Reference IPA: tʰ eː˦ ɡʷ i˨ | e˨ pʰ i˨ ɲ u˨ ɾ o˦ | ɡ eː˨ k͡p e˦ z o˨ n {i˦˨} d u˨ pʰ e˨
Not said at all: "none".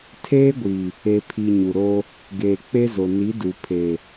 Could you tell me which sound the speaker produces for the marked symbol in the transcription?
i˨˦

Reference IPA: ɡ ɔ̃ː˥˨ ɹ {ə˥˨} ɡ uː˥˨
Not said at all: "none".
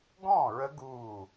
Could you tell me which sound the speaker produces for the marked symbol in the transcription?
ə˦˥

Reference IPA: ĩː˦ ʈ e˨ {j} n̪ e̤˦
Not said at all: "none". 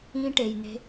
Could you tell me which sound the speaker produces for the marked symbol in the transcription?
j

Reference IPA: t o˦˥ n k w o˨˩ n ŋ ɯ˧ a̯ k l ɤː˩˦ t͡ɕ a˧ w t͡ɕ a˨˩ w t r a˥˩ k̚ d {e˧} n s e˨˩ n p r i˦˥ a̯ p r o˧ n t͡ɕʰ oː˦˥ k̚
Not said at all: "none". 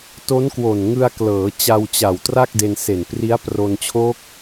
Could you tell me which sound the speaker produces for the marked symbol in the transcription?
e˧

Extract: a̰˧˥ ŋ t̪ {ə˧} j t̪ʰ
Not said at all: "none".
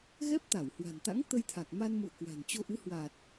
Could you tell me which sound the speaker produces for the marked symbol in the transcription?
ə˧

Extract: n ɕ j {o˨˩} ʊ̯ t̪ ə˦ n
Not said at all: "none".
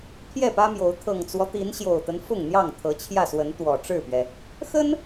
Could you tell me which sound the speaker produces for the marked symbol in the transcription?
o˨˩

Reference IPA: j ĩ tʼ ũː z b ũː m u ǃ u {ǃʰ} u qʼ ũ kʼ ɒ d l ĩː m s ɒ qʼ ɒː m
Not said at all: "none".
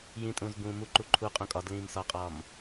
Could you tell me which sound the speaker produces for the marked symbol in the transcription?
ǃʰ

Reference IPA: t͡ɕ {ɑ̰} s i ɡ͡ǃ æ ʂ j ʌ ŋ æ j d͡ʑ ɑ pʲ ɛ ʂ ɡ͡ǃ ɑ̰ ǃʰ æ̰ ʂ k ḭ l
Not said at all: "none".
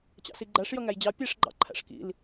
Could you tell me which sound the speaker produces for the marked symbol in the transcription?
ɑ̰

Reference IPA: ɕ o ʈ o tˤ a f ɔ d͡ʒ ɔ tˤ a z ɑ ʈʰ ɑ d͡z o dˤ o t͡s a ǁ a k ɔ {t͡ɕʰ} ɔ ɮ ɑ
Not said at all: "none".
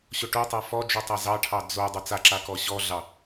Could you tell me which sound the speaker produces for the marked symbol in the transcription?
ɕ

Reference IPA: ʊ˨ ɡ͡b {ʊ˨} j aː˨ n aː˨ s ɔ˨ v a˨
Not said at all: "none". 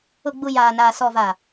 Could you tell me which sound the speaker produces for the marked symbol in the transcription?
u˨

